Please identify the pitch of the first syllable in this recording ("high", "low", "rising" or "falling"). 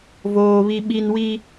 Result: high